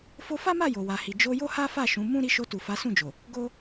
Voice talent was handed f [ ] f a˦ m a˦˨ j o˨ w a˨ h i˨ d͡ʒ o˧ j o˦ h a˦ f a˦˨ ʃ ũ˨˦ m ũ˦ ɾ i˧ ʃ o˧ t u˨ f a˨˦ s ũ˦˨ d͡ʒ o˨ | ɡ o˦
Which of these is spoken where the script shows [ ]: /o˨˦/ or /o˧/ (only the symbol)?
o˧